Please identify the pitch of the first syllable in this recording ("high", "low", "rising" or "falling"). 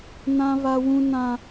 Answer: high